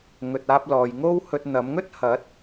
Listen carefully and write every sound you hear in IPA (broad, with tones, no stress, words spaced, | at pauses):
ŋɵ˨t̚aː˧p̚lɔː˨jŋo˥w hɵ˧t̚n̪ɐ˨˥m ŋɵ˥t̚hɐ˨˥t̚